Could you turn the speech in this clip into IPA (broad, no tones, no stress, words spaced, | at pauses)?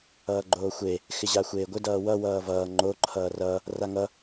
ʌːɡ͡ǃoːxʷe | xɪʑaxʷeːɡʷɪ dʌːwʌ wʌːvʌː ŋ͡ǃo ǃʰʌːrʌ | raŋʌ